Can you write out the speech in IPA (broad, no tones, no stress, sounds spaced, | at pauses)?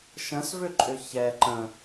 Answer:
ʃ ə̃ s v ʏ ǃʼ ʏ ç ɛ ǃ ə̃